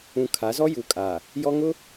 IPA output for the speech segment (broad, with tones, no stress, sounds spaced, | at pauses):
ũ˨ kʰ a˨˦ z ɔ˦ j uː˨ kʼ aː˨ | j ɔ˦ ŋ ʊ˦